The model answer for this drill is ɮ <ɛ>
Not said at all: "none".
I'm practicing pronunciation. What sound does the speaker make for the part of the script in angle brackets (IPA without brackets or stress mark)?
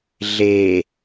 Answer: e